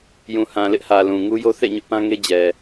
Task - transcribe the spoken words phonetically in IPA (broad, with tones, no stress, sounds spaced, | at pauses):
j ũ˨ h ã˨ l ɪ˦ ʔ h ä˨ l ũ˨ ŋ u˦ j o˦ θ ḛ˦˨ ɲ ʊ˦ ʔ p ã˦ ŋ e˦ d͡ʑ ɛ˨